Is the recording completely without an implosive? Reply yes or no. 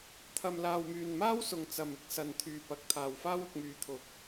yes